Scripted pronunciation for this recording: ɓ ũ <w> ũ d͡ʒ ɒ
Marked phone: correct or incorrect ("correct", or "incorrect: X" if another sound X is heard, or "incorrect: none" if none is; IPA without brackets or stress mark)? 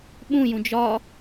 incorrect: j